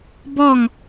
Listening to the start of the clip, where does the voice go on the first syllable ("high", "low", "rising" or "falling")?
falling